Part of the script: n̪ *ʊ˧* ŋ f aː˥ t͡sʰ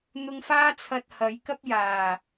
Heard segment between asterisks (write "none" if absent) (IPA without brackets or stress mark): ʊ˧